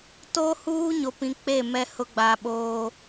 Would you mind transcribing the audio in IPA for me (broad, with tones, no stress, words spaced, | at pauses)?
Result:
to˦huː˦ ɲo˨pĩ˨ k͡pe˦˨ mɛ˦hʊ˦ɡ͡ba˨ɓoː˦